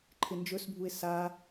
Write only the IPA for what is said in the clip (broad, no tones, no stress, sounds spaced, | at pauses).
ǃʰ ɪ n d͡ʒ ɵ s bʱ u ɪ̯ s a